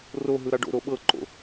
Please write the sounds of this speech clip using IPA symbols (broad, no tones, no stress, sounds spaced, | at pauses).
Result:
r o ɦ ɯ ɾ a ɖ o̰ ɾ o ɓ ɤ ǃ o̰